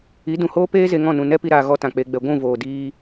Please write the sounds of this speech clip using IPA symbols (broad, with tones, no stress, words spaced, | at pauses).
i˨˦dũ˨hoː˦peː˦ ze˧ŋɔ̃˦˨nũ˨ nɛ˦pi˧ɾaː˨ ɣɔ˦tã˨k͡pe˧ɡ͡bɛ˧ ɡʷũ˦˨voː˨ diː˧